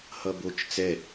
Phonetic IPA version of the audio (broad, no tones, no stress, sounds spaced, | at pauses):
h ʌ b o t͡ʃ t͡s ɛ